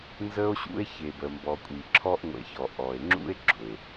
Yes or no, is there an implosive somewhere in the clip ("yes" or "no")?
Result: no